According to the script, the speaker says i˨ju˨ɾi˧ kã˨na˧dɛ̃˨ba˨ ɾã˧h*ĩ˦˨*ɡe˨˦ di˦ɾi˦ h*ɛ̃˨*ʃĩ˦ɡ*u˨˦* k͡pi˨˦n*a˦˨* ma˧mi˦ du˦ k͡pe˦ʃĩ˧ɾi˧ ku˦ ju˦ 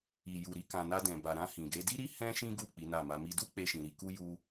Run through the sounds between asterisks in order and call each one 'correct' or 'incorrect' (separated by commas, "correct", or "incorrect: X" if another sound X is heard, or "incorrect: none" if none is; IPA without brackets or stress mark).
incorrect: ĩ˨, incorrect: ɛ̃˦, incorrect: u˦˨, correct